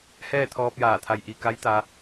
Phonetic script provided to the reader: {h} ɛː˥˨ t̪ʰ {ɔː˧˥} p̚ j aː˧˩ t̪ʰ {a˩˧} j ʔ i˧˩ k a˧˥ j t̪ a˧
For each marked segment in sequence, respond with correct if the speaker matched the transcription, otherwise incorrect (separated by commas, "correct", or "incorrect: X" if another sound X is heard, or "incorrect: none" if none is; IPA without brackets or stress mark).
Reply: correct, incorrect: ɔː˧, incorrect: a˧˩